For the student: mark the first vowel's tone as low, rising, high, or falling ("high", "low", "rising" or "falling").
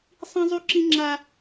high